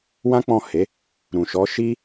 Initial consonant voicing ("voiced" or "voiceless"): voiced